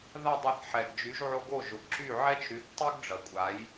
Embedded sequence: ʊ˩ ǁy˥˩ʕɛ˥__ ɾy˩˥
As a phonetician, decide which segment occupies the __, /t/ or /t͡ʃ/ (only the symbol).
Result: t͡ʃ